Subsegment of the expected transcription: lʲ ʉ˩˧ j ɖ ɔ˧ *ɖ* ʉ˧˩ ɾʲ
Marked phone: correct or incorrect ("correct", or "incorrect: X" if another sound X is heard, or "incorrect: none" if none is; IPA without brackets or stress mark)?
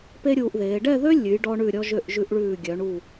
incorrect: ɳ